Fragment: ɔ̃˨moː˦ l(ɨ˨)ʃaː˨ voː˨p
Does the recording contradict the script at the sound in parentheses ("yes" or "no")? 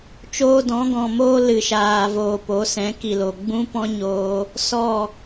no